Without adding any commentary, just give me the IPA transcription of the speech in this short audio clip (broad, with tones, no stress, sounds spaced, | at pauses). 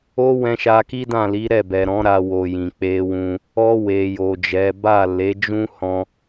o˦ w ɛ̃˧ ʃ a˧ k i˦ d ã˦˨ l i˨˦ ɾ ɛ˦˨ b ɛ˨ ɾ ɔ̃˨˦ ɾ a˧ w o˨ j ĩ˨ k͡p e˧ w ũ˧ | ɔ˧ w e˨ j o˨ d͡ʒ ɛ˨˦ b a˦˨ l e˨˦ d͡ʒ ũ˦ h ɔ̃˧